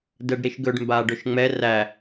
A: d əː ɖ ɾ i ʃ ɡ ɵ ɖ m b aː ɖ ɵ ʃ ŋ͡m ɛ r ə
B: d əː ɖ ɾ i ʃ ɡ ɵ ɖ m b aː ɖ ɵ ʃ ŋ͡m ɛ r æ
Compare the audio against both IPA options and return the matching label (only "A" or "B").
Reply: B